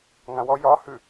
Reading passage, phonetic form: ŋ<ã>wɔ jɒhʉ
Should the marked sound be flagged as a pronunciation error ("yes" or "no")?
no